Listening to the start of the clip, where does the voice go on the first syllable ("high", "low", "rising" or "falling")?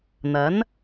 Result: rising